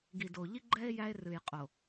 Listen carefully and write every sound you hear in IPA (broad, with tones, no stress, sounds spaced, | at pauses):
ɡ i˨ d o˨ ʎ i˦ ɡ͡ǃ ɛ˦ e̯ j æ˦ e̯ r ɨ˨ j qʼ o˨